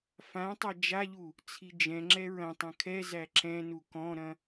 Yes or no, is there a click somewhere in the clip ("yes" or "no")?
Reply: yes